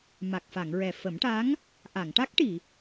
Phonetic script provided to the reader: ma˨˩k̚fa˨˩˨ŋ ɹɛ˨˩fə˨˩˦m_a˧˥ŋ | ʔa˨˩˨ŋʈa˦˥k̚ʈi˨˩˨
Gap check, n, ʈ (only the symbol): ʈ